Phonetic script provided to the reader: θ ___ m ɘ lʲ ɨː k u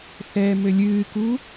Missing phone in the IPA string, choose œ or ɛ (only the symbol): ɛ